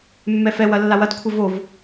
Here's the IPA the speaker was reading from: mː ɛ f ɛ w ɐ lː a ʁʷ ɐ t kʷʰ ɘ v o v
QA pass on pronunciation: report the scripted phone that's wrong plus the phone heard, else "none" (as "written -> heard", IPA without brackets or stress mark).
ʁʷ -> w